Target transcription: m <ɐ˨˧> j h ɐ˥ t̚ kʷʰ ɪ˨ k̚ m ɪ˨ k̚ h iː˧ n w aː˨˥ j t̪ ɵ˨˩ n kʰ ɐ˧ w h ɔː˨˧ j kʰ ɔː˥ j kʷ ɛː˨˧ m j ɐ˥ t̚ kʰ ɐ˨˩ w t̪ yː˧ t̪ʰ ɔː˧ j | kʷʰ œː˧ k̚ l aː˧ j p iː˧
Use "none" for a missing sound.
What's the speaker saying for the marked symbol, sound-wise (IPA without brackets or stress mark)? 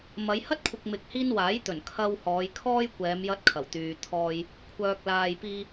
ɐ˨˧